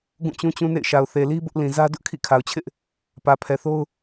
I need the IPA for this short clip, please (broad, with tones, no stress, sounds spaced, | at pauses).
ɡ ũ˦˨ t͡ɕ ũ˦ t͡ɕ ũ˦ n ḛ˦˨ ɪ̯ ʃ a˨ ʊ̯ θ e˨ l i˦ b ʊ˦ ʔ l ĩ˨ z ä˦ d ʊ˦ ʔ kʰ ḭ˦˨ kʰ a˨ ʊ̯ t͡ɕʰ ɪ˦ ʔ | p ä˨ pʰ ɛ˨ θ o˦ ʊ̯